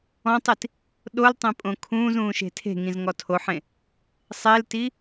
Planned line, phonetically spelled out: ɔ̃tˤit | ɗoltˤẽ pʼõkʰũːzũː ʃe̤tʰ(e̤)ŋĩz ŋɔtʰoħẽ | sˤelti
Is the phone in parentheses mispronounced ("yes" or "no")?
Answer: no